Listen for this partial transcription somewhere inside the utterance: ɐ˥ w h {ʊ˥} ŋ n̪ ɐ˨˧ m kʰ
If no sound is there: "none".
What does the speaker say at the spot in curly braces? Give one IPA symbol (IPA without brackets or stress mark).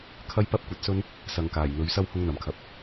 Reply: ʊ˥